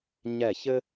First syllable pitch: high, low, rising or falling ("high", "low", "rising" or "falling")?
falling